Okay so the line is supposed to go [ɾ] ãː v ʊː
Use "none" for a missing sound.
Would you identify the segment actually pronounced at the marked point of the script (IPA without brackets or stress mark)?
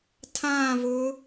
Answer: tʰ